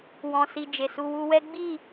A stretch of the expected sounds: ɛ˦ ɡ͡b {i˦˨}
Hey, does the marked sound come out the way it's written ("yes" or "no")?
yes